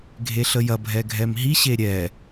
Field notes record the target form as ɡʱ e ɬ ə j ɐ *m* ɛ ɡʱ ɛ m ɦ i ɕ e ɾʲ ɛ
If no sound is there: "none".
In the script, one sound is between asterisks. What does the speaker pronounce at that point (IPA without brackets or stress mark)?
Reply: bʱ